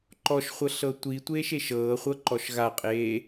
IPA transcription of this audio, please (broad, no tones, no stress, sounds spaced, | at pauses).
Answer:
ǃ ɔ ʃ χʷ ɤ ɬ ɤ tʷ i tʷ eː ʃ e ʃ ɤː χʷ ɤ ǃ ɔ ʃ ɣ a qʼ eː